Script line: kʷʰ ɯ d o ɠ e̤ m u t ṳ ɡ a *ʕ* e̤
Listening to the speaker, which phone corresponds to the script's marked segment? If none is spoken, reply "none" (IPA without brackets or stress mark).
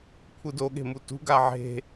ʕ